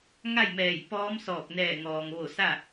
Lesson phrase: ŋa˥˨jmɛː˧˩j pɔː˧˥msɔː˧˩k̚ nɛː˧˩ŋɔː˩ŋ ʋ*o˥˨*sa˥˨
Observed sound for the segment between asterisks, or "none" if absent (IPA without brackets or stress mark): o˧˩